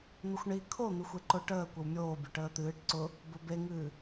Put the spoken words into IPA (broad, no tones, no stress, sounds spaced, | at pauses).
n̪ ʊ xʷ ɳ i kʰ o n̪ ɨ xʷ e ǃ ʊ ʈ əː kʷ ə w mʲ oː bʲ ʊ ʈ əː t̪ ɨː ʈ ǀ ʊ | b ʊ b e ŋ ɨː